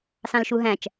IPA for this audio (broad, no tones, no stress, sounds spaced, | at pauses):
s ɑ̃ l ʃ u ɦ æ̃ t͡ʃ